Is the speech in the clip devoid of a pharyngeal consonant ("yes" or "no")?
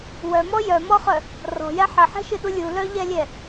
no